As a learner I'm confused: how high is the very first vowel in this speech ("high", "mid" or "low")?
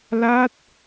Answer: low